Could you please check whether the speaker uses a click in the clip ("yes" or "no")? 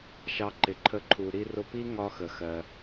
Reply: yes